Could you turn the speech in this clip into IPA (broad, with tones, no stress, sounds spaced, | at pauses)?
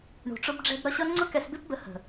ɳ ṳ˨ ʈ͡ʂ ʊ˧ b ɖ͡ʐ ɛ̤˧ b ɾ ʌ˧ ɕ ʌ˦ ŋ͡ǀ ʊ˦ k ɛ˧ s b ɪ˦ p b ə˧ h ə̤˨